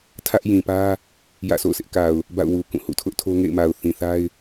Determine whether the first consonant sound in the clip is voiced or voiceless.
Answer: voiceless